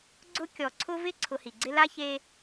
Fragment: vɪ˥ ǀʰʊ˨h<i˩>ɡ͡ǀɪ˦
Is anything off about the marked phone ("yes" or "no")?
no